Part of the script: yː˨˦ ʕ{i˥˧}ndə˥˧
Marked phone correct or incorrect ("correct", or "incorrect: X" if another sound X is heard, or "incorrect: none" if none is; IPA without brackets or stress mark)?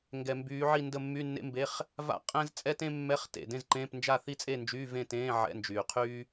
correct